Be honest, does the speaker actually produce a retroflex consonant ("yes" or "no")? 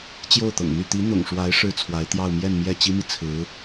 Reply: yes